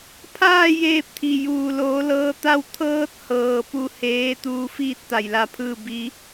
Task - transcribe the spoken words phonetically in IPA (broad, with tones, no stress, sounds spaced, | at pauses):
pʰ aː˥˨ j eː˧ p̚ t̪ʰ i˩ j uː˩ l oː˩˧ l ɤː˧ t̪ a˥˨ w t̪ʰ ɤː˧ t̚ h ɤː˩ p u˧˩ h eː˧˥ t̪ uː˧ f iː˥˨ t̚ t̪ a˩ j l a˧ pʰ ɯː˥˨ b i˧˥